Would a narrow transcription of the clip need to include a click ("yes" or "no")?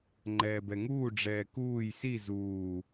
yes